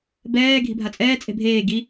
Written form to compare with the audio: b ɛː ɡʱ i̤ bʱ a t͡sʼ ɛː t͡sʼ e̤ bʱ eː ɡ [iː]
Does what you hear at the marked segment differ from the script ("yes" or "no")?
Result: yes